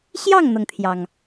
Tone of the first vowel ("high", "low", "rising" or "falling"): falling